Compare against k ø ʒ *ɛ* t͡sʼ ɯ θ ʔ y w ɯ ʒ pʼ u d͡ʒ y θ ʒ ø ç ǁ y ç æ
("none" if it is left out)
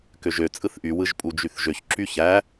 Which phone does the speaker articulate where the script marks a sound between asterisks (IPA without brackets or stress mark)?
ø